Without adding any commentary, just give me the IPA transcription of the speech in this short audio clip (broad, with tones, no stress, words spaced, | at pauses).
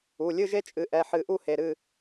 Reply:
u˩˧˩lʲɨ˥˨ʒe˦ t͡ʃʼɨ˩˧˩ʔɛ˩˧˩ħɨ˧˩˧ ʔu˥˨he˩˧˩ɾɨ˥˨